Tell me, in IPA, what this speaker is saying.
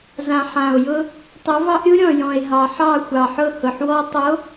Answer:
zã˨ħã˨o̯jʊ˦ | tˤo˨˦vɑ˦ʔɾʲu˦ ɾʲɔ̃˨jɔ̃˨e̯ɦɑ˨ ħɑ˦˨xʷɑ˨ħʊ˦˨hʊ˨ħ wɔ˦ tˤo˨˦

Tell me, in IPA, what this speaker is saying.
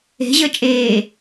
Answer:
e̤ʑəː t͡ʃʼeː

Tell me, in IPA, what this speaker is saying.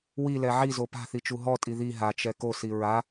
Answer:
wilɛ ʕizo pa̤θi t͡ʃuɦɔtʼi ði ɦat͡ʃɛ kosi ɹa

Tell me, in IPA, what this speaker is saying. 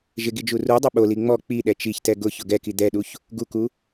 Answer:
ʒɪɡid͡ʒu rudˤɪ ɓoli ŋ͡mɔ k͡piɗɛ t͡ʃiçtɛ ɡʊçʊ ɡɛki d̪ɛɗuç | ɡuku

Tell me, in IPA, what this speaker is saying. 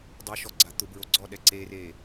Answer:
dˤoʃɔɡ͡ǀa t̪ʊbɹo ɡ͡ǀɔɗɛ ǀere

